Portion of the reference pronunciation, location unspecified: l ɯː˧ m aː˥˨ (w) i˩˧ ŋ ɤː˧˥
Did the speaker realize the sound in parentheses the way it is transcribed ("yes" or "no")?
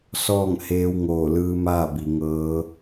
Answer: no